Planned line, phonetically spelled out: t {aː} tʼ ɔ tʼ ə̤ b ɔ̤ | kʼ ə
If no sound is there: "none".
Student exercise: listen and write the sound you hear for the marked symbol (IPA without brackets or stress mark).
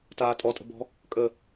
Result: aː